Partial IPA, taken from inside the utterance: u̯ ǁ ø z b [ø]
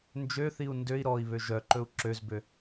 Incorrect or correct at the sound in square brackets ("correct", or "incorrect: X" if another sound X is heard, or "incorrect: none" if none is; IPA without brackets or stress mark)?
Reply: correct